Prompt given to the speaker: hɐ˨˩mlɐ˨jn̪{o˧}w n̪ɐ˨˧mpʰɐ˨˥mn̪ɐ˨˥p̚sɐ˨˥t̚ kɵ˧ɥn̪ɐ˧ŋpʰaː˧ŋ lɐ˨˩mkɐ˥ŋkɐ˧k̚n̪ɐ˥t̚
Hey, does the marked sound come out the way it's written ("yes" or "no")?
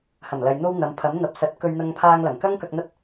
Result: yes